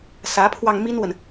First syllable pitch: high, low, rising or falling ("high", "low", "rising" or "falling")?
rising